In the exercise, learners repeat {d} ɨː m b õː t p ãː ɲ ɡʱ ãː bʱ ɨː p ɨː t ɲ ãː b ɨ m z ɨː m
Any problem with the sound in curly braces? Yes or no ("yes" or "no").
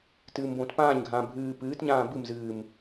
yes